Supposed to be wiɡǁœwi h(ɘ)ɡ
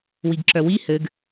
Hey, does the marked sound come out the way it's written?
yes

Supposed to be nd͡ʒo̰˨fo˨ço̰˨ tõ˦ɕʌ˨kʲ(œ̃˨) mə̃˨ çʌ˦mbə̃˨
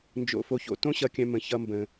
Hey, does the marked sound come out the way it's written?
yes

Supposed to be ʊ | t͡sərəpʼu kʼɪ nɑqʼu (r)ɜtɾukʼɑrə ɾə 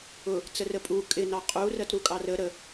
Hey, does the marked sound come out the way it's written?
yes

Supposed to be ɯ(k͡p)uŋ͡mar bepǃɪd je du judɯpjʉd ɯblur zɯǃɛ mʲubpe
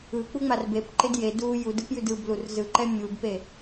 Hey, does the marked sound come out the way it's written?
yes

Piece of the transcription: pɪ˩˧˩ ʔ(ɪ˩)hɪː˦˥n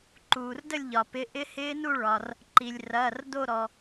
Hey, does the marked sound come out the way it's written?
no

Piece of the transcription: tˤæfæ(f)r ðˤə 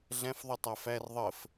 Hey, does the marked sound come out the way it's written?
no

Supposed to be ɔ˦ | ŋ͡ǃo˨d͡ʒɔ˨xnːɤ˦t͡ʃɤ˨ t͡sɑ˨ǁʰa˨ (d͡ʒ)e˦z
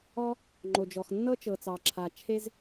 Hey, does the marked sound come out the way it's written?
no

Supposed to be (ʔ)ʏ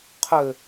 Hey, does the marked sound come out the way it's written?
no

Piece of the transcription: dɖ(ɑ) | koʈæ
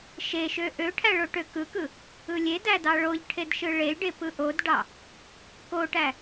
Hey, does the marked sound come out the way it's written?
yes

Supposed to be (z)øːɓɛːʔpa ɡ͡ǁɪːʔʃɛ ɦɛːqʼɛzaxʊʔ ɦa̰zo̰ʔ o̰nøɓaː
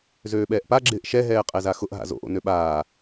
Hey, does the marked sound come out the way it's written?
yes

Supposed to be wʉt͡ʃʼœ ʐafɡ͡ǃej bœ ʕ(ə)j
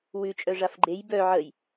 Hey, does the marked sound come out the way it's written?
yes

